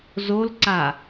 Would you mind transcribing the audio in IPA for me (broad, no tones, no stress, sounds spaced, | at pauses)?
z o l ǀ a